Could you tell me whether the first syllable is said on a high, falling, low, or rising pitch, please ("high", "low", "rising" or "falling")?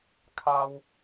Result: high